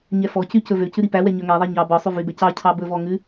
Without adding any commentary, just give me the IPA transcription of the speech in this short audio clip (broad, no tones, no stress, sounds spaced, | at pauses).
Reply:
ɲ ɛ f ɔ c y c ɵ v ø c ʉ ɾ i p æ w ɛ ɲ œ ŋ ɛ ðˤ ɛ ɲ ɑ b ɔ sˤ ʉ v y b ɛ c ɑ cʰ ɑ b ɵ v ɔ ŋ ʉ